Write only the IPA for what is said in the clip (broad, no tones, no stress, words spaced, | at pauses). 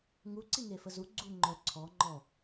ŋuǀi ŋefəzu ɡ͡ǀu ŋ͡ǃœ ǀʰɔ ŋ͡ǃɔ